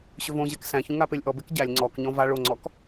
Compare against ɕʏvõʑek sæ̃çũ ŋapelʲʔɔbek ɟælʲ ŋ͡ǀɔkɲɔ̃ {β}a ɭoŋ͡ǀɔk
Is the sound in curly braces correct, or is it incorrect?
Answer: incorrect